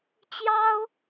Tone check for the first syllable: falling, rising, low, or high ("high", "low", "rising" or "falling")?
high